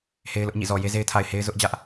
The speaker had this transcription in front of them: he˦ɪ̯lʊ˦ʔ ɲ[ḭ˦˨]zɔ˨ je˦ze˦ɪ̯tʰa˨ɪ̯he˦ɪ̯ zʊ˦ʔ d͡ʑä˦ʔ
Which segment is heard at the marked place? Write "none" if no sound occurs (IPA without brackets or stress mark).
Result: ḭ˦˨